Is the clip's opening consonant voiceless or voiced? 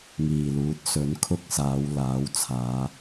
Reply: voiced